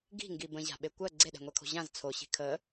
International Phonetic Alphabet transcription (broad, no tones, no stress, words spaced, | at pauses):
ɡi̤ŋɡi bə̃ʑa̤ɓe kʷɜ ɡ͡ǀeɗɛ̤ŋʷɛkʰo̤ ʑãz t͡sʰoɕi̤ kʰə